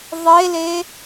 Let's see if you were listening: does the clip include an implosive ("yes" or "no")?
no